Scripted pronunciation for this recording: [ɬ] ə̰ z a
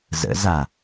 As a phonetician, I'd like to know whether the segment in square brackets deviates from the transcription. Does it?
yes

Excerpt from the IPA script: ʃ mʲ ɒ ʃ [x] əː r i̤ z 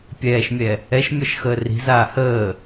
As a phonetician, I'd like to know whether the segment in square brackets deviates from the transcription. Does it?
no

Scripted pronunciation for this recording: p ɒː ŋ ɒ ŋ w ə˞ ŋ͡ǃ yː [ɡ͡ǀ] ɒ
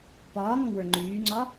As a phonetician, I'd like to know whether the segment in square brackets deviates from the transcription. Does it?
yes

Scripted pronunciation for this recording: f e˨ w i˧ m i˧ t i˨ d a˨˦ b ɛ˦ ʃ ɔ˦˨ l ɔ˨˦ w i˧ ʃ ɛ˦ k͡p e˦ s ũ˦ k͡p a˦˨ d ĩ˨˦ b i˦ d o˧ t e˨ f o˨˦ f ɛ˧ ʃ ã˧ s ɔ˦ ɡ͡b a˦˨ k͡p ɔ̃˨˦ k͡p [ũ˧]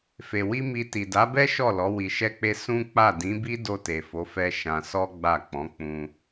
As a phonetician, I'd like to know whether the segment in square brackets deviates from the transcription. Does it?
no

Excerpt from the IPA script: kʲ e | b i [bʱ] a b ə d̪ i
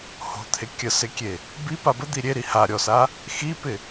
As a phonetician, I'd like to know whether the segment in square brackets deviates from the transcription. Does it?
yes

